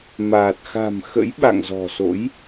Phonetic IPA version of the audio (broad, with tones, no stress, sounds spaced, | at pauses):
m aː˨˩ t̚ x a̤˨˩ m x ə̰˧˥ j ɓ a̰˧˨ ŋ z ɔ̤˨˩ s o̰˧˥ j